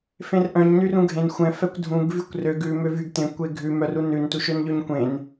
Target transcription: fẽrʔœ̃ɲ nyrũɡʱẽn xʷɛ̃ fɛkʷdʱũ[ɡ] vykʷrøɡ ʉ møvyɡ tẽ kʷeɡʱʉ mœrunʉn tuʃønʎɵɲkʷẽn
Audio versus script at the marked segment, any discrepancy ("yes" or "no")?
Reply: no